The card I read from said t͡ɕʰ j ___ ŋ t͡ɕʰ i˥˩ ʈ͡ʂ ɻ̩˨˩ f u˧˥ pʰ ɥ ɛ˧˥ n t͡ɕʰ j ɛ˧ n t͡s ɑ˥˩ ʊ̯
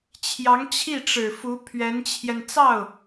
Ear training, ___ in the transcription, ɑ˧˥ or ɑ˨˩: ɑ˧˥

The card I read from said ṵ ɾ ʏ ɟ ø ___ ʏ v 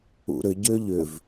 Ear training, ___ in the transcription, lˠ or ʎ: ʎ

